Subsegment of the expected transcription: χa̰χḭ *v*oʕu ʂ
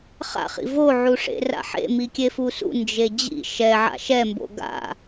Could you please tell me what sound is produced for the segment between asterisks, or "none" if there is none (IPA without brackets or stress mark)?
v